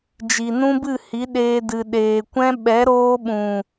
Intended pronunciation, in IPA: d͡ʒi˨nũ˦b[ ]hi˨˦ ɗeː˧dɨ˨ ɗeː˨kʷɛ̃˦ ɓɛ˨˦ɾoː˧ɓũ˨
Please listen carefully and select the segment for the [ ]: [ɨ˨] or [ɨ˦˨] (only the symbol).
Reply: ɨ˦˨